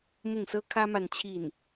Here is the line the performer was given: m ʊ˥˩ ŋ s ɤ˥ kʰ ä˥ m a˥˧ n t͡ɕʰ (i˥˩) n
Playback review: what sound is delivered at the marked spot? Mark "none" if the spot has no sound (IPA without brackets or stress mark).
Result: i˥˩